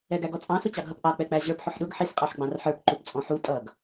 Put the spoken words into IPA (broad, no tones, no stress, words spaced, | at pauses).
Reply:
ɛɡæɡɔt͡sʼɑ̃ sʊt͡ɕɑɡɦʌpʔɑ k͡pɛk͡pæʑə˞p ħʊħɗʊɡ ħis qʼɑħɡ͡bɑ̃rħə˞p ǃupt͡sʼɔ̃ħu tʼʌɡ